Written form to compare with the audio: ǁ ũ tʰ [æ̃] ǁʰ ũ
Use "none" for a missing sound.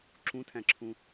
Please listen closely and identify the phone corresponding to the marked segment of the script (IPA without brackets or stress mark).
æ̃